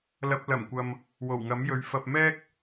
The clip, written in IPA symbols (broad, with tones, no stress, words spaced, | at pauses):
lɐ˨p̚lɐ˨˩mkʷɐ˨m | wo˨˩wŋɐ˨˥mjɵ˨˧ɥ fɐ˨p̚ mɛː˥k̚